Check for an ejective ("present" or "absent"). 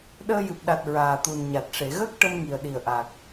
absent